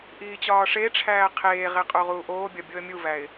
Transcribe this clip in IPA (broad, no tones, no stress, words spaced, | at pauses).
ʔiːt͡ɕɒːʂeʈ͡ʂʰæː qʰeːʁe qʼoʁuːʔoːbʲɒ bʲoə̯mʲuvæɪ̯